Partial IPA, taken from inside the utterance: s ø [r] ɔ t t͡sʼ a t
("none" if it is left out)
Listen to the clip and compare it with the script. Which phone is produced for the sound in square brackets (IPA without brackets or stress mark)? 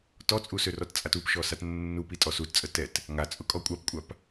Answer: r